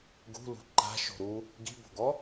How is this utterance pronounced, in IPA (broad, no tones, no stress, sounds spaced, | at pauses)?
ɡ ṳ l ṳ ǃ a̤ ʃ o̤ ɾ u | ɡ i̤ b o̤ ɡ ɔ